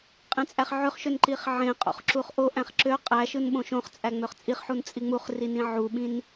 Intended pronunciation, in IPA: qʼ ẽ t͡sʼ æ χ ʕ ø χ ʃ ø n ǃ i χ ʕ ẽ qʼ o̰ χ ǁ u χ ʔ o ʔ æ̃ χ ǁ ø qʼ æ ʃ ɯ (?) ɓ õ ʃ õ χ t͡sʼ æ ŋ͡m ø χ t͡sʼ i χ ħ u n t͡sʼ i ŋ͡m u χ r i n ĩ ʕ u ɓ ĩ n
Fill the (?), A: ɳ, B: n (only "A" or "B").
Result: B